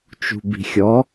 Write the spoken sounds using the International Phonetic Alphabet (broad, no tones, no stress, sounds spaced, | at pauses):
t͡ʃ ṳ b i̤ xʲ ɔ